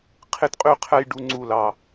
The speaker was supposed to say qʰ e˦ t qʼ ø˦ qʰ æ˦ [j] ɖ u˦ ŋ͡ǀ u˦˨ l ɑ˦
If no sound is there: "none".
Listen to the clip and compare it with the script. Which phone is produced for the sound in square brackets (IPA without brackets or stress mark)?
j